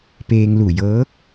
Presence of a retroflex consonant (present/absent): absent